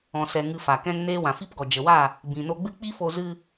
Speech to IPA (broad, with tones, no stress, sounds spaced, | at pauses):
ɔ̃˨ s ɛ˨ ŋ ɨ˧ f a˨ k ɛ̃˦ ŋ n eː˦ w ã˨ f i˦ p ɡ ɔ˨ d͡ʒ ə˨ w a˦˨ | b ĩ˨ n o˧ ɡ͡b ɨ˦ k͡p i˦ f o˧ z ɨ˧